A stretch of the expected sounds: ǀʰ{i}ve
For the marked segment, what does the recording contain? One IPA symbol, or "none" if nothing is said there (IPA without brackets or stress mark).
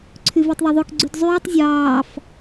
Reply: y